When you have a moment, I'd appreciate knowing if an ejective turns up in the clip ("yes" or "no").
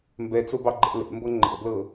no